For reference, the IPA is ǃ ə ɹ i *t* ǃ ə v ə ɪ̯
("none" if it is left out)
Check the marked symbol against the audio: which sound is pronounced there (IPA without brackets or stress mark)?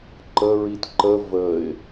t